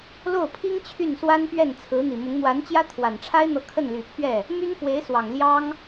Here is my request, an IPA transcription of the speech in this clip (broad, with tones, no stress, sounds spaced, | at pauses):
l o˥˩ ʊ̯ pʰ i˥ ŋ t͡ɕʰ y˥˩ n s w a˥ n p ɥ ɛ˥˩ n t͡sʰ ɹ̩˧˥ n̪ i˨˩ m ʊ˧˥ ŋ n̪ w a˧˥ n t͡ɕ j ä˥ t̪ʰ w a˨˩ n ʈ͡ʂʰ a˥ ɪ̯ n̪ ɤ˧˥ kʰ ə˥˩ n l y˨˩ pʰ ɥ ɛ˥˩ | m y˥ n f w e˧˥ ɪ̯ s w ɑ˨˩ ŋ l j ɑ˥ ŋ